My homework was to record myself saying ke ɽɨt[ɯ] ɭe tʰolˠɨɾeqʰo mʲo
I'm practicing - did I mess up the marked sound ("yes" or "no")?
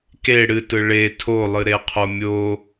no